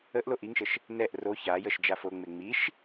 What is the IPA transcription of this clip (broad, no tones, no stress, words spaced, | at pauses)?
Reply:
əʔ loʔiŋʃəʃ | nɛʔ ro çajəʃ d͡ʒafoŋ͡me ŋ͡miʃ